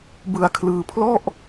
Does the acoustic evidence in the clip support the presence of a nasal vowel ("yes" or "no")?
no